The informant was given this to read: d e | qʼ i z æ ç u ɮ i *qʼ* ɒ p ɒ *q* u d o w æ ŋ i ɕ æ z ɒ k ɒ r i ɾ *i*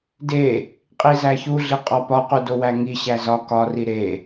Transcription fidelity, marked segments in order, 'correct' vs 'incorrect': correct, correct, incorrect

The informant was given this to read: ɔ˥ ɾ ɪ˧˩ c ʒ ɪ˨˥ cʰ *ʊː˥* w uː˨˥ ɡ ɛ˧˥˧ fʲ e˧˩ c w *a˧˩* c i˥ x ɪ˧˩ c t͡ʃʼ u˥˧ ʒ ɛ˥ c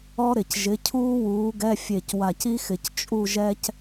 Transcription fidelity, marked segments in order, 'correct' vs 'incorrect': incorrect, correct

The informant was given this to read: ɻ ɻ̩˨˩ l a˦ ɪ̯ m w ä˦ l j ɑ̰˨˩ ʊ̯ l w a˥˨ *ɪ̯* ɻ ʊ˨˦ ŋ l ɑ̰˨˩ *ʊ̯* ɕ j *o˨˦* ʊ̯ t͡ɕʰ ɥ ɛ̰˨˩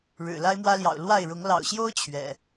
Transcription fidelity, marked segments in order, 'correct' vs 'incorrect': correct, correct, incorrect

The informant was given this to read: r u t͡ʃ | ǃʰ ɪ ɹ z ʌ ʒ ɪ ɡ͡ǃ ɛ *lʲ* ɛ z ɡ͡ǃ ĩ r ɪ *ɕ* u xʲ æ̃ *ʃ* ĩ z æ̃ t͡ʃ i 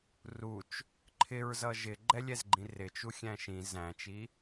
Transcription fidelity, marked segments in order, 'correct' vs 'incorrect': correct, incorrect, correct

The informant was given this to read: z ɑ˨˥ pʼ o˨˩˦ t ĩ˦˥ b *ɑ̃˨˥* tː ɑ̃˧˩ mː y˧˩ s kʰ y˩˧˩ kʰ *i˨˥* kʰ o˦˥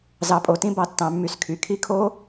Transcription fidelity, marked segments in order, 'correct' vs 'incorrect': incorrect, incorrect

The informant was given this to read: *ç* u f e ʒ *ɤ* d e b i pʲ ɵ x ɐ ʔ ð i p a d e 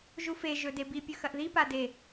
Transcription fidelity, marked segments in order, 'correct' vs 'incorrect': incorrect, incorrect

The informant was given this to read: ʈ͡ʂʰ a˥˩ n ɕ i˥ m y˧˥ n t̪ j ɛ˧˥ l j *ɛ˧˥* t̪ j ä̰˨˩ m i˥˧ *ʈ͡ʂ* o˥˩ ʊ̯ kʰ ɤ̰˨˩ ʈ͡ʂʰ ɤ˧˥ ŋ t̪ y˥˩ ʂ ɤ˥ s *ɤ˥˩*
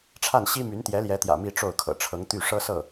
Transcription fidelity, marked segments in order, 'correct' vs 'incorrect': correct, correct, correct

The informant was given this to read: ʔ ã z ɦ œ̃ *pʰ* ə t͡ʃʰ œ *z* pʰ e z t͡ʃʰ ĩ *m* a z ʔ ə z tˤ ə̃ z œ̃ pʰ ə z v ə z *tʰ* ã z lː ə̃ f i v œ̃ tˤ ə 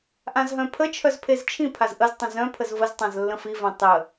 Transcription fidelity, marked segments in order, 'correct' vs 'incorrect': correct, correct, incorrect, incorrect

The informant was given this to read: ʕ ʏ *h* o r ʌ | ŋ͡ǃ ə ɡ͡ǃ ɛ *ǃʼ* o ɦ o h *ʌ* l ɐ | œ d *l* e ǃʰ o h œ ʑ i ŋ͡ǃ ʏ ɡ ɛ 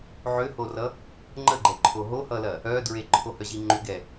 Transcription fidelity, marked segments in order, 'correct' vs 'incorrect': correct, incorrect, correct, incorrect

